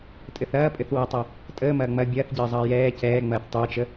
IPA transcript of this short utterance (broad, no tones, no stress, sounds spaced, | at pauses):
tʼ ɘ θ ɐː pʼ ɘ θ w ɐ tˤ ɐ | tʼ əː m ɐː ŋ͡m ɐ bʲ ɐː θ ɟ ɘː zˤ ɐː j ɛː c ɛː ŋ͡m ɐː θ tˤ əː t͡ʃ ə